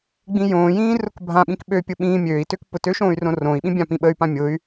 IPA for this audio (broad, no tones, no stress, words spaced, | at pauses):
ɡ͡bĩjõːjĩː rʊkbʱãɓĩk ɓøpʲʊ ɓĩː mʲøːi̯tøk pʊtø ʃõːy̯rõrõːi̯ɓĩ bʲãpĩɓəy̯pã mʲʊy̯